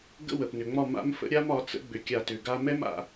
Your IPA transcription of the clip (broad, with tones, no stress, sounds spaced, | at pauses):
ɡ ə̰˦ w ə˨ p n ʏ˨ ŋ͡m ɒ˦˨ m a̰˦ m f ə̰˦ ɾʲ a˦ m ɒ˨˦ t͡s ə̰˦ ɡ͡b ʏ˧ kʲ a˦˨ t ʏ˧ ɡ a˧ m ɛ˦ m a̰˧